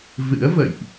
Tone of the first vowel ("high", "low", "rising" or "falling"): rising